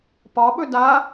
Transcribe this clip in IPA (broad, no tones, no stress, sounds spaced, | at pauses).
p ɒ ɓ ɵ d a